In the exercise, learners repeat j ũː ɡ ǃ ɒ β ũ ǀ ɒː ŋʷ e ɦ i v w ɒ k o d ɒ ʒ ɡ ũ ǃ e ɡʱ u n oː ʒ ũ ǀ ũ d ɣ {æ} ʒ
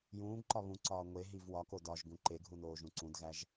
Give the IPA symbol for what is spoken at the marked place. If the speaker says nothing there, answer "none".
æ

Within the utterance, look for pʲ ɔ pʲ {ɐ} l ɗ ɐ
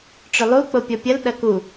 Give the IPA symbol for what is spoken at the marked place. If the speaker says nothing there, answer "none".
ɐ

